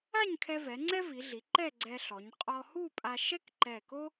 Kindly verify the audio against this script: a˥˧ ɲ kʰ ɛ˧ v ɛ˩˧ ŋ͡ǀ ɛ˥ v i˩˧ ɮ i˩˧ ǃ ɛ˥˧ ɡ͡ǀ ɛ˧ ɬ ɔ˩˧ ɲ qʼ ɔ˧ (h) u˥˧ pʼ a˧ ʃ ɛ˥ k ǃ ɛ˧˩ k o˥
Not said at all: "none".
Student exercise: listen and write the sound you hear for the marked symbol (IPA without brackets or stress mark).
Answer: h